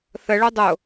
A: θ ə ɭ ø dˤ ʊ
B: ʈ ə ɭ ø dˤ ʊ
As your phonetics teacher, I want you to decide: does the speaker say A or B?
A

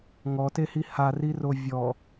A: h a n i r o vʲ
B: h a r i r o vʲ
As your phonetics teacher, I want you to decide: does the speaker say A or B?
B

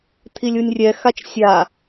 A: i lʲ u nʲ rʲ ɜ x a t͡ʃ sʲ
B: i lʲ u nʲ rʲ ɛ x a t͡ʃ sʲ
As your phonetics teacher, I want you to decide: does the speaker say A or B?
B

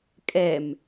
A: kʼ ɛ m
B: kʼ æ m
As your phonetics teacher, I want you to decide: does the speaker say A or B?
A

